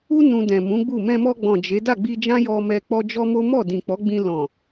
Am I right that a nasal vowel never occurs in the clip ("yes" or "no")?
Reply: no